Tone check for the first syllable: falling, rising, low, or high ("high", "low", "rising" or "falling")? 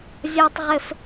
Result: high